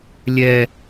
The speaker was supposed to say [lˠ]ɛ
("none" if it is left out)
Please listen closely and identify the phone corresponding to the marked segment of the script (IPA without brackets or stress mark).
lʲ